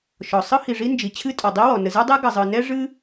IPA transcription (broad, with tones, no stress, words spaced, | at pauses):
ʃɔ˩ sˤɯ˥hi˩ ʐi˥nd͡ʒi˩ t͡ɕʰɨ˥tʼɔ˩ dˤi˥wɔ˩ nə˩zɯ˥dˤe˥ ɡə˩zˤɯ˩ nɛ˥ʐɨ˥